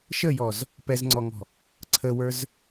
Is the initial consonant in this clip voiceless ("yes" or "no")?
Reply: yes